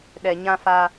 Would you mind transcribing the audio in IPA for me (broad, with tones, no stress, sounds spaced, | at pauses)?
ɗ ɛ˨ ɲ ã˦ f a˦